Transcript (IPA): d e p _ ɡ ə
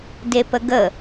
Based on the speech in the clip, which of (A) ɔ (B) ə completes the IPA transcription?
B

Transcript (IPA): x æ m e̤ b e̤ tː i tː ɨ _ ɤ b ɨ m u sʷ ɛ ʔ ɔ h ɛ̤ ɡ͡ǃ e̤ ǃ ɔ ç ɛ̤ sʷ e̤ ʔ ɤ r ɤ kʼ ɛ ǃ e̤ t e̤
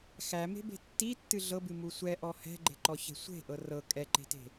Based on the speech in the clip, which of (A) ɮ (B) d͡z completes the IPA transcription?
A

